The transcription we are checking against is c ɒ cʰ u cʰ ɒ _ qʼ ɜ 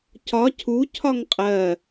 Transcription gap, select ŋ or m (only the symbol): ŋ